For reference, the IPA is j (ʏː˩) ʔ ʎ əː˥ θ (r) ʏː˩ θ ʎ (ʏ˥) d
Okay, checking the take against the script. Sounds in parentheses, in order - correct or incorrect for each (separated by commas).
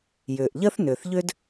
correct, incorrect, correct